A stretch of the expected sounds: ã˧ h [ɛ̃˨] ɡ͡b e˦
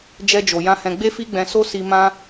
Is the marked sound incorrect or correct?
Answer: incorrect